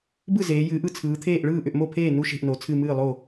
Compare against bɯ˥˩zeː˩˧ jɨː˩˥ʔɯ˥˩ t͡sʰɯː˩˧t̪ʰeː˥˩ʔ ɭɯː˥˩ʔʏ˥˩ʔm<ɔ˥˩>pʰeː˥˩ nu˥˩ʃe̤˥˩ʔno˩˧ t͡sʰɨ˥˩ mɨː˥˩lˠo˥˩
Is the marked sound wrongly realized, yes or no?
yes